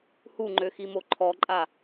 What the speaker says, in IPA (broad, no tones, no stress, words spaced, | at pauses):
huŋ͡ǃøximo ǃʰɔǃʼa